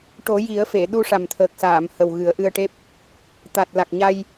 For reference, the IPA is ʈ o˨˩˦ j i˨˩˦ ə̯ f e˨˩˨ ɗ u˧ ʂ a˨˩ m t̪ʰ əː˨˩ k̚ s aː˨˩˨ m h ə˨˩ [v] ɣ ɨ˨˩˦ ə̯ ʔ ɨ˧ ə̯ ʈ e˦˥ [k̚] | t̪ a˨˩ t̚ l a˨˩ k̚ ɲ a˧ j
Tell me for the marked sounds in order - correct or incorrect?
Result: incorrect: w, incorrect: p̚

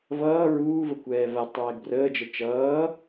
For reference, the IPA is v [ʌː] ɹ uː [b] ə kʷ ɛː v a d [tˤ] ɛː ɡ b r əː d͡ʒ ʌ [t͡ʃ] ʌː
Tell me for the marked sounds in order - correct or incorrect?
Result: correct, incorrect: v, correct, correct

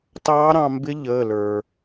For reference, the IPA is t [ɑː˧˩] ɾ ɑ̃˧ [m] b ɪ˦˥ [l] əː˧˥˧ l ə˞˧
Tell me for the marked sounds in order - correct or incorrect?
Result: incorrect: ɑː˦˥, correct, incorrect: ʎ

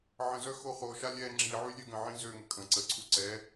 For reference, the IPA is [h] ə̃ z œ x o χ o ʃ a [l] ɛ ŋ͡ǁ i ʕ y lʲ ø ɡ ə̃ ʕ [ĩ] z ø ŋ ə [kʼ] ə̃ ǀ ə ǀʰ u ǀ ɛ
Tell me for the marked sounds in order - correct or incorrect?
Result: incorrect: ʕ, incorrect: lʲ, correct, correct

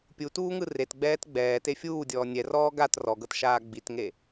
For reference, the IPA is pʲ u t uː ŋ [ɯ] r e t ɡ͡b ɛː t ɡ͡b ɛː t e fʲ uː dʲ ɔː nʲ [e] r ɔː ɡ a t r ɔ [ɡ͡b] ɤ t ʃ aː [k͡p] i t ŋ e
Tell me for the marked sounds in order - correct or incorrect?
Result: correct, incorrect: ɛ, incorrect: ɡ, incorrect: ɡ͡b

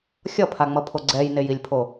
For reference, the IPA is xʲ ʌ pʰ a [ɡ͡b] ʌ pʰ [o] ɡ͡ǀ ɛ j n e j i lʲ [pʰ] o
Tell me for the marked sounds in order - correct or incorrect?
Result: incorrect: ŋ͡m, correct, correct

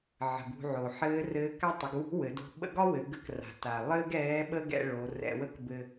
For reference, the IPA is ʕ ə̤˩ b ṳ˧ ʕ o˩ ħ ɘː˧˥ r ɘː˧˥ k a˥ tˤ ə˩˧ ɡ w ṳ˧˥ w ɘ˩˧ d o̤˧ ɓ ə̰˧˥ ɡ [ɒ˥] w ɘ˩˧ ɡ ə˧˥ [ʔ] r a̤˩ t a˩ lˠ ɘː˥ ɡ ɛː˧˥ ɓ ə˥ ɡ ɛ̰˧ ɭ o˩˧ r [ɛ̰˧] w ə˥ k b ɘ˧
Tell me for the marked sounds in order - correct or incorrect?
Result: correct, incorrect: k, correct

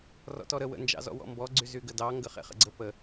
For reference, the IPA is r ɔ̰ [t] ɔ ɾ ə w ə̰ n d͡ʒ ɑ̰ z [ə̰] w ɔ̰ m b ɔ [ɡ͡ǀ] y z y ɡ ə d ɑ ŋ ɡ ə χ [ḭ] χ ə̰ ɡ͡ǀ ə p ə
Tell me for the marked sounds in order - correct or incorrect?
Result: correct, incorrect: ɔ̰, correct, incorrect: ḛ

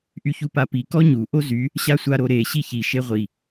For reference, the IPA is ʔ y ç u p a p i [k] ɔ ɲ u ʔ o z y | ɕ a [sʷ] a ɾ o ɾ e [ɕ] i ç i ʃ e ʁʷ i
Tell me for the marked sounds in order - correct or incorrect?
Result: correct, correct, correct

